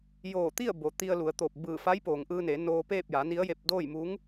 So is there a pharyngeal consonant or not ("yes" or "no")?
no